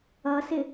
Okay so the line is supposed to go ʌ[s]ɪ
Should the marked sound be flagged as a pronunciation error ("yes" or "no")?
no